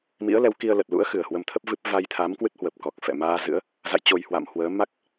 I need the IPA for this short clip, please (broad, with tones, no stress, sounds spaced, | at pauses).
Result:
m ḭ˧˥ ə̯ l ɛ˨˦ w k i˧ ə̯ l ə˨˩ t̚ l ṵ˧˥ ə̯ x ɨ˨˩ ə̯ h w ə˧ m t̪ʰ ə˦˥ p̚ v ɨ˦˥ p̚ v a˧ j t̪ʰ a˨˦ m k w ɨ˦˥ t̚ h w ə˨˩ p̚ k ɔ˨˩ k̚ f ɛ̰˧˨ m aː˧ z ɨ̰˧˥ ə̯ | z a̰˧˨ j t͡ɕ o˨˩ j h w a̰˧˨ m h w əː˨˦ m a˦˥ k̚